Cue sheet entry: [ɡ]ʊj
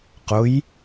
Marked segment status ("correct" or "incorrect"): incorrect